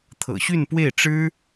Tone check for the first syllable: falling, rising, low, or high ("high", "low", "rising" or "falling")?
low